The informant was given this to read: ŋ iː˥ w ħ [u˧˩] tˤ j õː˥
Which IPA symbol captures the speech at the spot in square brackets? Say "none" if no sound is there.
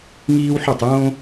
u˥˨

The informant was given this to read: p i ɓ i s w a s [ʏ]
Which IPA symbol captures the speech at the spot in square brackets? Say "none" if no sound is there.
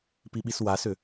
ʏ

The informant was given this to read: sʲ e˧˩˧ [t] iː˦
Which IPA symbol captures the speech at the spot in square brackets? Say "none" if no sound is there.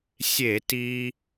t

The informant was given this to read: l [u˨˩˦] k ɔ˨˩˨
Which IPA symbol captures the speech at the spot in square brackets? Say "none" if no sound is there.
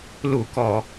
u˨˩˦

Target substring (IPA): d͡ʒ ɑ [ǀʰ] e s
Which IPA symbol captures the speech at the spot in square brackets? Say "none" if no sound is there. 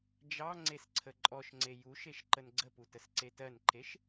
ŋ͡ǀ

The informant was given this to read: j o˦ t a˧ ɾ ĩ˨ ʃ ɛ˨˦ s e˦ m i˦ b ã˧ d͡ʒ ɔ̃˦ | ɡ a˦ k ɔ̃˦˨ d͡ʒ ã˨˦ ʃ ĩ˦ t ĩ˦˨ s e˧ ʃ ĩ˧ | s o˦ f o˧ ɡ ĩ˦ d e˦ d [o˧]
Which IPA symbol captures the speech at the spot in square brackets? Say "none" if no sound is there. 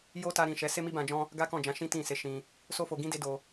o˧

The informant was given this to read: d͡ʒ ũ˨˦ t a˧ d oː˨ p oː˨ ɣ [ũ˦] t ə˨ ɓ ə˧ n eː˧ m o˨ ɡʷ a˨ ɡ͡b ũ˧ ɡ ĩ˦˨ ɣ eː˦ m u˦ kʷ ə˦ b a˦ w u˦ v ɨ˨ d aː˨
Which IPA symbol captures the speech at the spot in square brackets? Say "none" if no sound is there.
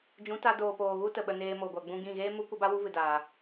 u˦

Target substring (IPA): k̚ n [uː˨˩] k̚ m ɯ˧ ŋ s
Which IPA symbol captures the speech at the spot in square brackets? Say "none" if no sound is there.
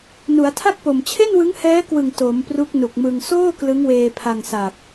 u˨˩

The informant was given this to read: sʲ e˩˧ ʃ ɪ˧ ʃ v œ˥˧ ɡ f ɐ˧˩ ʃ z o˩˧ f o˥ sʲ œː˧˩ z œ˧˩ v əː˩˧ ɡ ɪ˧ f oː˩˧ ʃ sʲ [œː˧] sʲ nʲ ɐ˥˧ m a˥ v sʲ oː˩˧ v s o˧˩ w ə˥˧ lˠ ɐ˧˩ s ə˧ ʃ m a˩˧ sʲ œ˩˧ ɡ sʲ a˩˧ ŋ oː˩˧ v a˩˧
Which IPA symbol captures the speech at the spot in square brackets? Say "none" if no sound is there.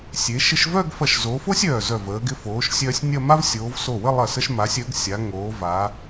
œː˧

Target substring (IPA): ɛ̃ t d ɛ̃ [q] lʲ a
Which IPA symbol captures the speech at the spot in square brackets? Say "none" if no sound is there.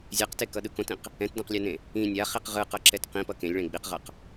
q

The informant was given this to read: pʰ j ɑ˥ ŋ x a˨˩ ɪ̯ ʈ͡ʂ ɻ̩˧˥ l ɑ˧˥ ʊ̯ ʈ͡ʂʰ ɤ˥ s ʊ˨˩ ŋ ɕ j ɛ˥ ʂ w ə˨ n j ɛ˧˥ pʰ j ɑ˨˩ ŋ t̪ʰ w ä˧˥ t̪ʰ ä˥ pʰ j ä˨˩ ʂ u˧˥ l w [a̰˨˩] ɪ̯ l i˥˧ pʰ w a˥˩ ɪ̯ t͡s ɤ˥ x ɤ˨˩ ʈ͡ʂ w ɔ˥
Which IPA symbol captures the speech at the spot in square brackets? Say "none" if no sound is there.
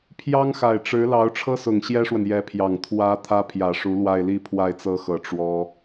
a˥˧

